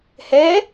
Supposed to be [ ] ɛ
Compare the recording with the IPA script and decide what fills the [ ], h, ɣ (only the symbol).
h